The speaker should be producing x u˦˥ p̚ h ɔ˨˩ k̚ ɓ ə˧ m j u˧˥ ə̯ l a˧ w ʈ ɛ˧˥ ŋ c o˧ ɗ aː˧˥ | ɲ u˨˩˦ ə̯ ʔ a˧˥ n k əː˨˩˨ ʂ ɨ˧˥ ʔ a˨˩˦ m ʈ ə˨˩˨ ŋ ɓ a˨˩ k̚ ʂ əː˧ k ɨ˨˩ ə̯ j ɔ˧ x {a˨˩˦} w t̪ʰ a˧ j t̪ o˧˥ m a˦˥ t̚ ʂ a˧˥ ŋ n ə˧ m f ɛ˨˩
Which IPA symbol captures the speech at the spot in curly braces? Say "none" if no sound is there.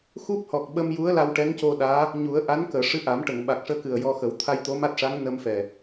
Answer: ə˨˩˦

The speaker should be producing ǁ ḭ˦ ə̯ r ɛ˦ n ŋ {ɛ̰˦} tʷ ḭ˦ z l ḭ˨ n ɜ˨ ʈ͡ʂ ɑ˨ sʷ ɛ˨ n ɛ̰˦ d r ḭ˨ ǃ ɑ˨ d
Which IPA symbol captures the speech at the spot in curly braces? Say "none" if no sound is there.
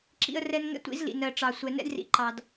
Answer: ɛ̰˦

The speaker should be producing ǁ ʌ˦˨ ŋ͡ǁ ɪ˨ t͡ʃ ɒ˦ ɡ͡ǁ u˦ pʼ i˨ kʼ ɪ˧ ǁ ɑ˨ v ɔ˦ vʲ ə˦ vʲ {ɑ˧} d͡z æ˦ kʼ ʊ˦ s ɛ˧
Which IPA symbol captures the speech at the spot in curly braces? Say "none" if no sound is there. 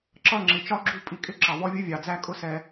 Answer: ɑ˨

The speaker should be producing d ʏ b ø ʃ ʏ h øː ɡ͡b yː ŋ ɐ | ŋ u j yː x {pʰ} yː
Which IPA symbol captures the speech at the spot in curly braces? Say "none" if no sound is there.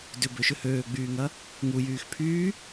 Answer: pʰ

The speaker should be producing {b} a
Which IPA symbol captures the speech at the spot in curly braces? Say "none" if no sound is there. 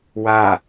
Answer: w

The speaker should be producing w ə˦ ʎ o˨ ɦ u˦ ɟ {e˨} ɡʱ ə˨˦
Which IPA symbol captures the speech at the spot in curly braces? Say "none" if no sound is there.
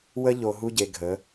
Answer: e˨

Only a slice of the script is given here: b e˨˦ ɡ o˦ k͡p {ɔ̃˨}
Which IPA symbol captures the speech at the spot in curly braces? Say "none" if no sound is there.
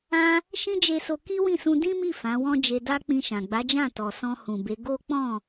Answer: ɔ̃˦˨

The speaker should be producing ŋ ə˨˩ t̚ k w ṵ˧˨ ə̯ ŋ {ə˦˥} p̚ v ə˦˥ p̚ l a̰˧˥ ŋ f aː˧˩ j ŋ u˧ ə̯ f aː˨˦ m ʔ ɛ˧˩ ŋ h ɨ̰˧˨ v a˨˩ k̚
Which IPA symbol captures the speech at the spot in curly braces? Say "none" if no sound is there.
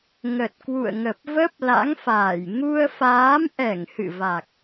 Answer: ə˨˩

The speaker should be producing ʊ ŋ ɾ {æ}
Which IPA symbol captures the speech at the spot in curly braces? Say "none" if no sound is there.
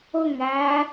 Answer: æ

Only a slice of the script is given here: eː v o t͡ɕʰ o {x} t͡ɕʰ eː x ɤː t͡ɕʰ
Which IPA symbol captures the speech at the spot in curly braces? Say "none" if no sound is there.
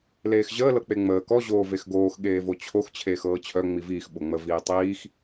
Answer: x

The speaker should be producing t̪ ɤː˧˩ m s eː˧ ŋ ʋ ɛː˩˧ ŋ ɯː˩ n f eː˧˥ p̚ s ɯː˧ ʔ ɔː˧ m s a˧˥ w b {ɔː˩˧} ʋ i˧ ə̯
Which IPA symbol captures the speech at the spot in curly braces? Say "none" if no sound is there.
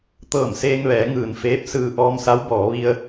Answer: ɔː˩˧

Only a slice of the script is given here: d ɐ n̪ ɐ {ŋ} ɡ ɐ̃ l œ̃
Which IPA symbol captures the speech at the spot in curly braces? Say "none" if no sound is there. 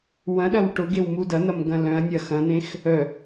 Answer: m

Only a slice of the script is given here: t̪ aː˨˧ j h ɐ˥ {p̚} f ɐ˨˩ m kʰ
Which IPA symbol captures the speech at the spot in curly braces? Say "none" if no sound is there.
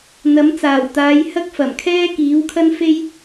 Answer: k̚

